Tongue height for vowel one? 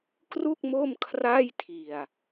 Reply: high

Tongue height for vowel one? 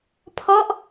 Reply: mid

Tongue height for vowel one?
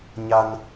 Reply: low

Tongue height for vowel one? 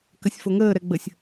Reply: low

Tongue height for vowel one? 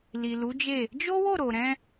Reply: high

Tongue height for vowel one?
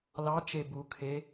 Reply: low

